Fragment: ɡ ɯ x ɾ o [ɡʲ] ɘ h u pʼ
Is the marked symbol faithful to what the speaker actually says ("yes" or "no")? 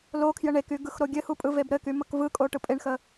yes